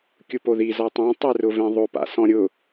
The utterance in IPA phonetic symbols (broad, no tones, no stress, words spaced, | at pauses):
kʲupoði zɔtˤõ tˤerʊvẽðˤo pa̰sɔ̃ɾʲʊ